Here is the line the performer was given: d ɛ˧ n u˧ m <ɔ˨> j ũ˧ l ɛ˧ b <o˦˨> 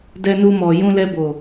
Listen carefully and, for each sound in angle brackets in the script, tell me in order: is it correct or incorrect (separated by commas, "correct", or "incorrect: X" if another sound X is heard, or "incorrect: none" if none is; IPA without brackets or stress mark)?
correct, incorrect: o˨